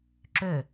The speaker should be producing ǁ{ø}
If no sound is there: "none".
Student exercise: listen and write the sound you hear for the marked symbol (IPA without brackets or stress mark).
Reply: ø